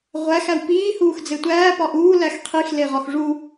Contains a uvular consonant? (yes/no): yes